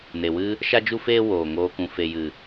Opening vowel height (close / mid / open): mid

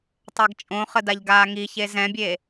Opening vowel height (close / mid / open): open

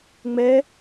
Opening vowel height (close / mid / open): mid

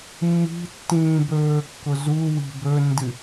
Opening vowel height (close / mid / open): close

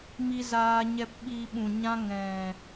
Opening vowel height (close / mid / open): close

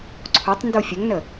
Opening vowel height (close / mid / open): mid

